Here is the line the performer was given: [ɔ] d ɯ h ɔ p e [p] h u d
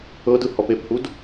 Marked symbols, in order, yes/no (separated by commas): no, yes